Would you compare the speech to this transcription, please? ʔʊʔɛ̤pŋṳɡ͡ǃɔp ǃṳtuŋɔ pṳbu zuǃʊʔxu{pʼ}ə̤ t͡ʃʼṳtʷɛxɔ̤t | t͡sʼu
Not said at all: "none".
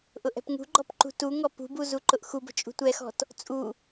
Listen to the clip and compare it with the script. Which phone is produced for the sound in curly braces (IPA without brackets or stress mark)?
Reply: b